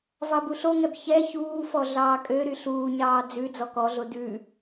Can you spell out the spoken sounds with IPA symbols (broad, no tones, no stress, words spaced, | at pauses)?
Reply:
vɑbuɬoŋɛb çɛ çuːfɔ ɮɑːkʼøɾy ɬuːɲɑː d͡zʉ d͡zɔkɔɮo dʉ